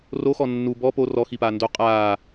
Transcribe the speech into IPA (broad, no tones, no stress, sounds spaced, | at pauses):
r o x ɔ nː u b ɔ p o r ɔ x i p aː n d o qʼ aː